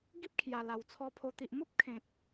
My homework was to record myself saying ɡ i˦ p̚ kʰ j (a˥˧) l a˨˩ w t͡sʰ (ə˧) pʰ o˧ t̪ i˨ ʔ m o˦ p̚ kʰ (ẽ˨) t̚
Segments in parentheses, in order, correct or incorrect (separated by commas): incorrect, incorrect, correct